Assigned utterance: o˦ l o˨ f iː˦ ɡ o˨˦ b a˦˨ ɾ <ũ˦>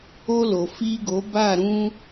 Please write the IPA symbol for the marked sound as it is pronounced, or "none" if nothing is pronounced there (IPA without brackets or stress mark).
ũ˦